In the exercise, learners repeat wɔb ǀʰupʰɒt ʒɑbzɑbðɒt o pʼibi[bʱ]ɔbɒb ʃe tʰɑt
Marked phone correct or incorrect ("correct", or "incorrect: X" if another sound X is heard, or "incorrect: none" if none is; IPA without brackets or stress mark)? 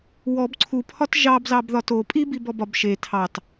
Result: incorrect: b